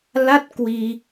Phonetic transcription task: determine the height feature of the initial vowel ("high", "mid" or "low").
low